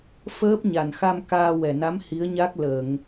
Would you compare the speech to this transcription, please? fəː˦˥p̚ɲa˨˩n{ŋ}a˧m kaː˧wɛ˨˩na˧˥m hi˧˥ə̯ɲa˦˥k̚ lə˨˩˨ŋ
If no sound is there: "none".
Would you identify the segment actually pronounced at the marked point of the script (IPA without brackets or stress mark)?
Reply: x